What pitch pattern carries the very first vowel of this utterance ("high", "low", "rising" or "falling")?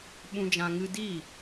low